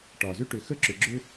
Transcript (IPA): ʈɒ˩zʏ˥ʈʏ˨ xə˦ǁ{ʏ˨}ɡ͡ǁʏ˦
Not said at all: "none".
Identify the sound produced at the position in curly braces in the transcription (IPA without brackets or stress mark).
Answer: ʏ˨